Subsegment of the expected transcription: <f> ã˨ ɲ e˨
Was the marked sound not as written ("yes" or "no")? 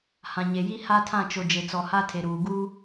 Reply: yes